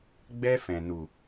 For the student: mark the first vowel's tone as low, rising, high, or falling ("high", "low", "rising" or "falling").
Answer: high